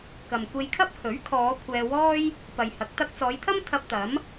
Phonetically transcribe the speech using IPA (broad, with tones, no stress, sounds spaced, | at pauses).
k ɐ˨ m kʷ e˧ j kʰ ɐ˥ p̚ h ɵ˨˥ ɥ kʰ ɔː˨˧ kʷʰ ɛː˧ w ɔː˥ j | p ɐ˨ j h ɐ˨˥ k̚ t̪ ɐ˧ k̚ t͡s ɔː˨˧ j t̪ʰ ɐ˥ m t̪ʰ ɐ˧ p̚ t̪ ɐ˨˥ m